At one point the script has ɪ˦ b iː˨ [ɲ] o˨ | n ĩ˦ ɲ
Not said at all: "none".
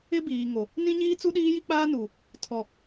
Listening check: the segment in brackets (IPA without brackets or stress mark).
ŋ